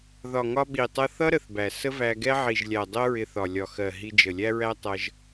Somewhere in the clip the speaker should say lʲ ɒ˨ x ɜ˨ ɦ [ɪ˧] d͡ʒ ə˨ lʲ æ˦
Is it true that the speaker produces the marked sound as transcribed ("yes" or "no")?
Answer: no